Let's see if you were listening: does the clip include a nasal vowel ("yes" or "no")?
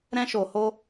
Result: yes